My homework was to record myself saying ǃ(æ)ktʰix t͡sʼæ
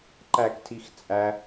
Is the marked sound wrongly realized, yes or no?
no